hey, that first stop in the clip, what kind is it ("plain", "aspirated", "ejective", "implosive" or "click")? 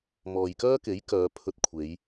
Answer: plain